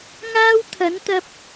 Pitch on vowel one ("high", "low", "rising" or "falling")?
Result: high